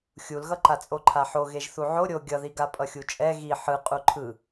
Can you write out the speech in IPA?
xʲ u l ɣ ʌ ǃ a t͡sʼ o ǃʰ a ħ o ɣ e ʒ θ u ʕ o ɾʲ o ɡʲ ʌ ð i ɡ a pʼ ʌ xʲ u t͡ʃʼ ɛ ɣ i ħ ɯ qʼ u ǃʰ ɯ

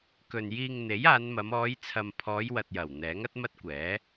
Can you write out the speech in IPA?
k ɵ˨ n j iː˧ ŋ n̪ e˨˥ j aː˨˧ n m ɐ˨˧ m ɔː˨˧ j t͡sʰ ɐ˨ m pʰ ɔː˨˧ j w ɐ˨ t̚ j ɐ˨˩ w n̪ ɛː˨˥ ŋ ɐ˥ t̚ m ɐ˥ t̚ kʷ ɛː˨˥

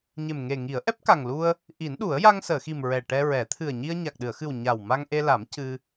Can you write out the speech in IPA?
ɲ e˨˩ m ŋ e˨˩ ŋ i˨˩˦ ə̯ ʔ ɛ˦˥ p̚ k a˨˩ ŋ l u˧ ə̯ | ʔ i˨˩˦ n ɗ u˨˩˦ ə̯ j a˧ ŋ s əː˨˩˨ x i˨˩ m ɹ ɛ˨˩ ʈ ɛ˧ ɹ ɛ˨˩˦ t̪ʰ ɨ˨˩ ə̯ ɲ i˧ ə̯ ɲ a˨˩ k̚ ɗ ɨ˨˩˨ ə̯ x ɨ˨˩ w ɲ a˨˩ w m a˧ ŋ ʔ e˧ l a˨˩˦ m c ɨ˧

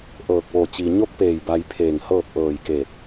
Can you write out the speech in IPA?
ʔ ɤː˧˩ k̚ ʋ o˧˩ t͡ɕ i˩ ɲ o˧˥ k̚ p eː˧˩ j b a˧ j pʰ eː˧˩ ŋ h ɤː˥˨ p̚ ʔ ɤː˧˩ j k eː˧˩ t̚

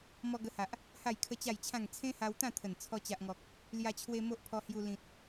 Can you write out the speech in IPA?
m ɔ˧ ɡ ə˧ h a˨ ʔ | h a˥˧ j kʰ ə˦ t͡ɕ a˥˧ j t͡ɕʰ ã˥˧ ŋ t͡sʰ ẽ˦ h a˧ w t̪ ã˥˧ t̪ʰ ə˨˩ n t͡sʰ ɔ˧ t͡ɕ a˨ ʔ ŋ ɔ˨ k̚ | l j a˧ t͡ɕʰ w e˧ m o˦ ʔ pʰ ɔ˧ h j u˧ l ĩ˨ t̚

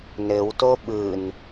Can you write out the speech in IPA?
n ɘ w t o ɓ ɯ n

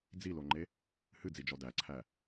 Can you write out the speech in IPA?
d͡z i l o ŋ͡ǃ e | h ɨ d͡z i d͡ʒ ɔ d æ ǀʰ æ

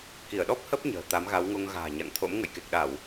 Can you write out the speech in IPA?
k i˧˩ ə̯ ɗ ɔ˦˥ p̚ h ə˦˥ p̚ ɲ ə̤ː˨˩ t̪ a˨˦ m ɣ a˨˦ w ŋ o˧ ŋ ɣ a̤ː˨˩ ɲ a̰˧˨ ŋ t̪ʰ o̰˧˥ m ŋ ə̰˧˨ j k e˨˩ k̚ ɗ a˧˩˨ w

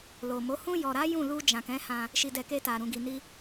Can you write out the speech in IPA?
l o˨ m o˨˦ h ũ˧ j ɔ˨ ɾ a˨˦ j ũ˦˨ l u˧ d͡ʒ ã˨ k ɛ̃˨˦ h ã˧ | ʃ i˨ d ɛ˨ k e˧ t a˨ ɾ ũ˨ ɡ i˨ n i˧

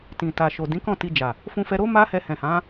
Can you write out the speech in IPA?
t ĩ˨ t a˨ ʃ o˨ d ĩ˨˦ k ɔ̃˦˨ t i˧ d͡ʒ a˨ | f ũ˧ f ɛ˧ ɾ o˦ m a˦ h ɛ˧ h ɛ̃˨ h ã˨˦

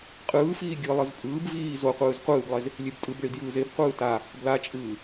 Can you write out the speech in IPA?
qʼ ɯː f iː ɡʲ ɯ lˠ ɯ z pʼ ɯː b v iː z o qʷ ɯː z qʷ ɯː b lˠ e z | lʲ e b tʼ ɯ b ɭ i d j ɯː z e b qʷ ɯː t a | b l a t͡ʃʼ ɯː

